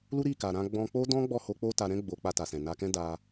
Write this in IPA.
l u˦ ɾ i˦˨ k a˨ ɾ ã˧ ɡ͡b ɔ̃˧ k͡p o˦ d ɔ̃˦ ɡ͡b ɔ˦˨ h o˧ k͡p o˦ t a˧ ɾ ɛ̃˦ ɡ͡b o˧ k͡p a˧ t a˨ s ɛ̃˨ n a˧ k ɛ̃˦ d a˧

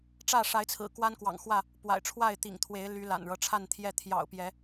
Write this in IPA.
ʈ͡ʂ ä˥˨ ʂ a˨˦ ɪ̯ t͡sʰ ɹ̩˨˩ k w a˦ n k w ɑ̰˨˩ ŋ x w ä˥˨ | p w a̰˨˩ ɪ̯ ʈ͡ʂʰ w a˥˨ ɪ̯ t̪ ḭ˨˩ ŋ t̪ʰ w e˨˦ ɪ̯ l y˨˦ l a̰˨˩ n ɻ ɤ˦ ʈ͡ʂʰ a˥˨ n t̪ʰ j ɛ˥˨ t̪ʰ j ɑ̰˨˩ ʊ̯ p j ɛ˨˦

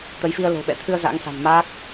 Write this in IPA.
t̪ ə˨˦ j f i˧ ə̯ l o̤˨˩ ɓ ɛ̰˧˨ t̪ʰ ɨ˧ ə̯ z a̰˧˥ ŋ s a̤˨˩ n m aː˦˥ k̚

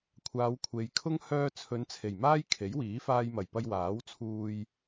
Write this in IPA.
kʷʰ aː˨˧ w kʷʰ e˨ j kʰ ʊ˥ ŋ h œː˧ t͡sʰ ɵ˨˧ n t͡sʰ e˨˩ j m aː˥ j kʰ e˨˥ j w iː˨˥ f aː˧ j m ɐ˨˩ j p ɐ˧ j w aː˨˥ w t͡sʰ uː˧ j

